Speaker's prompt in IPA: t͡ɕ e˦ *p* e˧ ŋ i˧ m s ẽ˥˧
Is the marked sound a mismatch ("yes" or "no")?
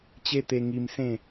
yes